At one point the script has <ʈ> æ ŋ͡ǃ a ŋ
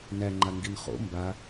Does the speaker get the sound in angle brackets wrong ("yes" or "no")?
yes